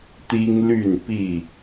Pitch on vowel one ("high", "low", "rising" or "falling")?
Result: high